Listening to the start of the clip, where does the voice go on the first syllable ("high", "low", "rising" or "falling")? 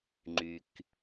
low